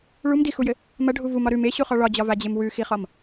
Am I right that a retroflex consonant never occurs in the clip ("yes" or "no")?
no